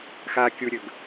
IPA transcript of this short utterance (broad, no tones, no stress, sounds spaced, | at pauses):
x a kʲ u ɾʲ ɵ ɡ